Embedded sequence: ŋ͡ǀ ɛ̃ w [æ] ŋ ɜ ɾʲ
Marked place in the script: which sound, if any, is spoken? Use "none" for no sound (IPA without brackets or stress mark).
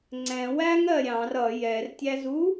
æ